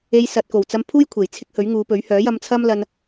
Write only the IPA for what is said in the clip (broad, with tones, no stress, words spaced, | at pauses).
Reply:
e˧j sɐ˨t̚ko˨˩w t͡sɐ˧m pʰuː˥j kʷʰe˨˩jt͡sʰɪ˥k̚ hɵ˨˥ɥŋuː˨˧pɵ˨˥ɥ hœː˨˥jɐ˧mt͡sʰɐ˥mlɐ˧n